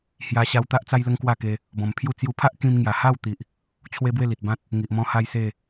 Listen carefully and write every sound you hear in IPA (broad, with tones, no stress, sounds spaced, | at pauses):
h j a˧ ɕ a˧ w t̪ a˦ ʔ t͡s a˦ j l ə˦ ŋ k w a˥˧ k e˧ | b ɔ̃˨˩ m pʰ j u˥˧ t͡s j u˧ pʰ a˦ ʔ k ĩ˧ m ŋ j a˨˩ h a˥˧ w t̪ i˨ ʔ | t͡ɕʰ w e˦ b w e˥˧ l i˨ t̚ b ã˦ t̚ | ŋ i˨ ʔ m ɔ̃˦ h a˦ j s e˥˧